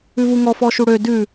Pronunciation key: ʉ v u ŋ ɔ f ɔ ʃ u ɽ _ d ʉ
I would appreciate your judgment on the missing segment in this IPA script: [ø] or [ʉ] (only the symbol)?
ø